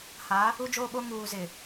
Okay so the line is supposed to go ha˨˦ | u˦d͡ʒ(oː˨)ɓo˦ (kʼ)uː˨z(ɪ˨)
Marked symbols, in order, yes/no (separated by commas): no, no, yes